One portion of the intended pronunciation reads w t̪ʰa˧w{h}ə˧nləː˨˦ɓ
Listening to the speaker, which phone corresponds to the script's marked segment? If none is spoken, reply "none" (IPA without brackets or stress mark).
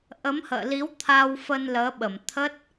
f